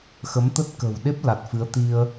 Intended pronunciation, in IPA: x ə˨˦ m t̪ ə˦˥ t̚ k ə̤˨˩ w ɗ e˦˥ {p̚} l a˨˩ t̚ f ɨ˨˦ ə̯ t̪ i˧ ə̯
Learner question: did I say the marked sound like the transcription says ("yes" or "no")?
yes